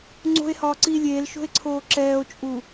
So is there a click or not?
yes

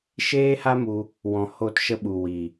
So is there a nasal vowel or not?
yes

